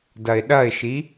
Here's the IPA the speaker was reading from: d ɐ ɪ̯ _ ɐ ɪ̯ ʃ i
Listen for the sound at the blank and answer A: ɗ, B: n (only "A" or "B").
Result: A